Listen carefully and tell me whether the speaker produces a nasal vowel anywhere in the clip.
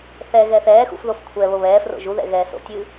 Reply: no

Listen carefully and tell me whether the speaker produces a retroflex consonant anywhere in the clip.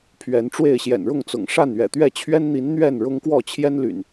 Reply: yes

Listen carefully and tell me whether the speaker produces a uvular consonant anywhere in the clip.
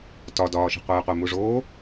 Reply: yes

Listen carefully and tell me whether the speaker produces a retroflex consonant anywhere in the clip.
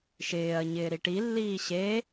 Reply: yes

